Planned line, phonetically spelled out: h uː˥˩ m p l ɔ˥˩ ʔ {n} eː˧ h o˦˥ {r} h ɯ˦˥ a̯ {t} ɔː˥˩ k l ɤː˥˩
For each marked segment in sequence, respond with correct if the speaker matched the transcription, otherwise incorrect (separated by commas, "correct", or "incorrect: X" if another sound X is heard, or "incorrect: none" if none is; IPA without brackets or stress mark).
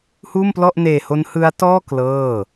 correct, incorrect: n, correct